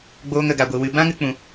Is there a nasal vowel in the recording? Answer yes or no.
yes